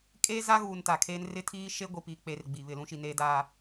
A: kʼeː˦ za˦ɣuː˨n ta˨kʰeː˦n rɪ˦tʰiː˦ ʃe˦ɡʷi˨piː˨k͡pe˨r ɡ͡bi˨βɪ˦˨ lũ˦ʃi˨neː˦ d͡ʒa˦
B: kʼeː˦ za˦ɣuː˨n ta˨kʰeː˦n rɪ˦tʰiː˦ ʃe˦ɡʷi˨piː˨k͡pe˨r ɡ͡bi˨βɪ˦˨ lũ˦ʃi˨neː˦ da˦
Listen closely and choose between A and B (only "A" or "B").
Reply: B